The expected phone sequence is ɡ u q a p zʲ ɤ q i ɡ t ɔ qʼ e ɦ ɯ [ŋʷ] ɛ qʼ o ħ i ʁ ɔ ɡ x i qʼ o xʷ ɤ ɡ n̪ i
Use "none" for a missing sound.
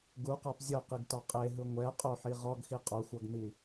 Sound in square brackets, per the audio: ŋʷ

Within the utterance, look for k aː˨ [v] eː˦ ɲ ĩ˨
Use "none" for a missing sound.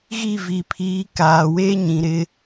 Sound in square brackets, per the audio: w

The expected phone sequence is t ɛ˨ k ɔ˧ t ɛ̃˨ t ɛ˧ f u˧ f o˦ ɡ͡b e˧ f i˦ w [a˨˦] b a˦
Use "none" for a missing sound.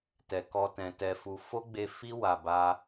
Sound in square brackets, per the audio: a˧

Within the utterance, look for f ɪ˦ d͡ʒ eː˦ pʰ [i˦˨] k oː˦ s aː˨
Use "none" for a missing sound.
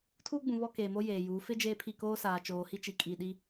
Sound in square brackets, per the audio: i˦˨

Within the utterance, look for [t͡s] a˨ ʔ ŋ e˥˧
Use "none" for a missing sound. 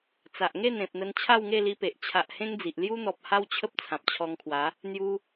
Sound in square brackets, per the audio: t͡s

